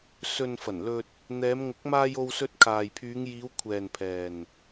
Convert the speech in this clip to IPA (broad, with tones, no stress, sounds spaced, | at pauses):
s ɵ˨ n f ɐ˨˩ n l ɵ˧ t̚ | n̪ ɛː˨˧ m ŋ ʊ˨˥ k̚ m aː˧ j o˧ w s ɵ˧ t̚ kʰ aː˨ j pʰ yː˨˧ ŋ j iː˨˧ w kʷʰ ɛː˨ n pʰ ɛː˨ n